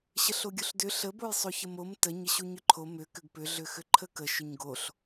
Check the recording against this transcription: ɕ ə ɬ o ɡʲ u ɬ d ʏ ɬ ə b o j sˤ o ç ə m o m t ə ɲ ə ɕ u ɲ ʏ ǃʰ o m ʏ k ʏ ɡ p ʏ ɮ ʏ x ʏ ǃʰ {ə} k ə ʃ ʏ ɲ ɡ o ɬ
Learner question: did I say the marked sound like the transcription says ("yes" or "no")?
yes